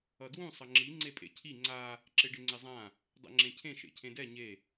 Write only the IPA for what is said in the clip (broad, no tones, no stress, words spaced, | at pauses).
ʌdwũ sˤʌŋ͡ǁi ŋ͡ǀepʼḛcʰi ŋ͡ǀa | ǁeɖeŋ͡ǀezˤã | dˤɛ̰ŋ͡ǁẽcʰẽ ʃḛcʰẽdɛ ɲe